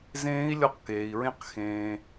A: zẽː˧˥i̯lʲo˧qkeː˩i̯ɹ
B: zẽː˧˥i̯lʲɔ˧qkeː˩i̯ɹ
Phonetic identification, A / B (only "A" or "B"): B